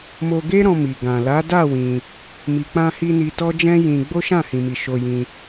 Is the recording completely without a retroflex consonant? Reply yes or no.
yes